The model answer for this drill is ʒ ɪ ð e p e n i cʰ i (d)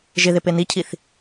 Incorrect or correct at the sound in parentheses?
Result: incorrect: θ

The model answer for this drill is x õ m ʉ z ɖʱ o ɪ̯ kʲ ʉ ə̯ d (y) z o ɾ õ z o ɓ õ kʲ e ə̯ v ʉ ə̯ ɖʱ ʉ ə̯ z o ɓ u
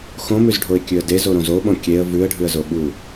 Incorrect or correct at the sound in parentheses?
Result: incorrect: e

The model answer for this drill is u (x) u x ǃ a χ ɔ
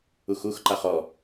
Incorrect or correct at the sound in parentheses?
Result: correct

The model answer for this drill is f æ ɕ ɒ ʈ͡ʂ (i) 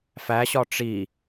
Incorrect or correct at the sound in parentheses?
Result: correct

